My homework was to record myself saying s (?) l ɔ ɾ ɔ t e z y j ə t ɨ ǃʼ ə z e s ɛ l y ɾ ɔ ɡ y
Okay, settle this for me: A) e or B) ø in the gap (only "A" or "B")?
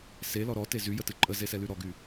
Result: A